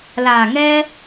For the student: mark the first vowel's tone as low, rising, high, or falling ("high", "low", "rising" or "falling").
low